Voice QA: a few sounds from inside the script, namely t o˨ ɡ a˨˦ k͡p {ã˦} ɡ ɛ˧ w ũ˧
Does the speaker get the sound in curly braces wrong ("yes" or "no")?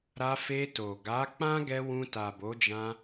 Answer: no